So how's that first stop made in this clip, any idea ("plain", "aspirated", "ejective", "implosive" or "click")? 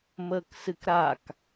plain